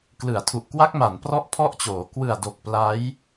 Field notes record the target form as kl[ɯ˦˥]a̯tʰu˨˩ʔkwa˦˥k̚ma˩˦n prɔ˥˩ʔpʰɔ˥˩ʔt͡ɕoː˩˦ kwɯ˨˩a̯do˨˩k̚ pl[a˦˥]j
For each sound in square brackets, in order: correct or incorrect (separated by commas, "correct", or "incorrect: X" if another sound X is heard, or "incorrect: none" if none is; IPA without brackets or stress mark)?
incorrect: ɯ˩˦, correct